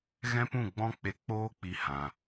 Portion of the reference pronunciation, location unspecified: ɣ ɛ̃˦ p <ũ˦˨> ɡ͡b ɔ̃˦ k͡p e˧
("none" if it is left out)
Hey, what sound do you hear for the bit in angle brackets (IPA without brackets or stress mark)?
ũ˦˨